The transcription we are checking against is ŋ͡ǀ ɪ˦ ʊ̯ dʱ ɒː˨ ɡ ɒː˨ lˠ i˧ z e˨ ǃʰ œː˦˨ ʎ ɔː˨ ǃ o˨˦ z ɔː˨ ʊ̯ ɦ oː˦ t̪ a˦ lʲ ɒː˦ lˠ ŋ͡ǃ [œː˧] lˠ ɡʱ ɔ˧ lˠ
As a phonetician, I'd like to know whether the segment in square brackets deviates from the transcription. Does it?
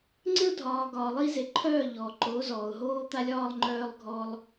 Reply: no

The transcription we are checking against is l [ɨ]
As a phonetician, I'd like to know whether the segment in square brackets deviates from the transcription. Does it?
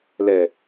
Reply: yes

